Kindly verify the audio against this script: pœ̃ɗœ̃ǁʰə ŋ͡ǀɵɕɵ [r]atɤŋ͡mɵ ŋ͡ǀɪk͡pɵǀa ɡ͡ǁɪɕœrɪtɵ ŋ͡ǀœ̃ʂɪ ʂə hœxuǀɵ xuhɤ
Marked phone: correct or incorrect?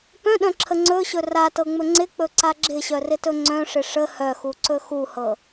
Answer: correct